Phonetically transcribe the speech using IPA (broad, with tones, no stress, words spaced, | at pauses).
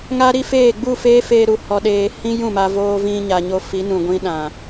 ŋa˦ɾi˦feː˦˨ ɡ͡bu˦˨ feː˦feː˧ɾu˨ hɔ˨ɗeː˨ hĩ˦jũ˦˨ma˧ voː˦vĩ˦ ɲa˨ɲo˧ fi˨˦nũ˨ɡʷĩ˦ɗã˨